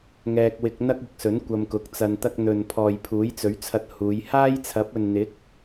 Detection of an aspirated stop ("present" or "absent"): present